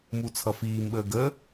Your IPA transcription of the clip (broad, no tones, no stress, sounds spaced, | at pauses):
m u t͡sʰ ʌ f iː m ɓ əː ɡ ə